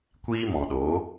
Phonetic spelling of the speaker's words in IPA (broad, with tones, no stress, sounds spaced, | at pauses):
kʷ iː˦ m ɔ̃˨ ɗ oː˨˦